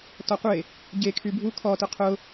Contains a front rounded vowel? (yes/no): yes